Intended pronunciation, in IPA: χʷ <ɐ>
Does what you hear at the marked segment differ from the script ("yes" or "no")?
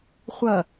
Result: no